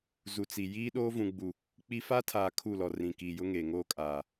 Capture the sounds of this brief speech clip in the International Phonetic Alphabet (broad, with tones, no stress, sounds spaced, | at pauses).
z u˨ t͡s i˨ j iː˦ ɗ oː˦ v ũ˨ ɡ͡b u˨ | k͡p i˦ f a˦ tʰ aː˨ kʰ u˦˨ l ɔ˨ r ĩ˨ k iː˨ j ʊ˦ ŋ eː˨ ŋ oː˦ kʼ aː˨